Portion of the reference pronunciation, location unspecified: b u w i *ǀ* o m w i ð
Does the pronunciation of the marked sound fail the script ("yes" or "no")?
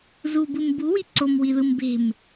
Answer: no